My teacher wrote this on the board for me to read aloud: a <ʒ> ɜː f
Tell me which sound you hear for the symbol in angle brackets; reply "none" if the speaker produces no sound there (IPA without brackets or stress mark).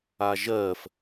ʒ